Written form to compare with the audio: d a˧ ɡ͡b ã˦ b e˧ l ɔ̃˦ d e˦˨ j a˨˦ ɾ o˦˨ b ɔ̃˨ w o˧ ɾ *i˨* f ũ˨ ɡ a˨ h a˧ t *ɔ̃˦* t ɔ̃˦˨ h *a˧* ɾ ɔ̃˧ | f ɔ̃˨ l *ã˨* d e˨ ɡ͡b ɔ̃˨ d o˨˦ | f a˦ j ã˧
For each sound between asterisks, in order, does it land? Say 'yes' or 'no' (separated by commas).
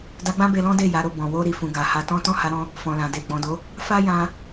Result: yes, yes, yes, yes